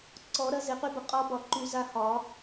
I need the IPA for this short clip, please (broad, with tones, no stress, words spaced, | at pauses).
ǀɔ˨˩˦ɾɐ˧ ze˩˥qy˧˥bə˩˥ qʼɔ˧˥bɒ˨˩˦ǃy˨˩˦za˧˥ hɒ˨˩˦